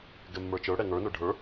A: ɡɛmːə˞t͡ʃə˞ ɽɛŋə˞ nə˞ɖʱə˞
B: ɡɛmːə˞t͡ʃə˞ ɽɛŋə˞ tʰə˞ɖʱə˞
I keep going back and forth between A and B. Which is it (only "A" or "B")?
A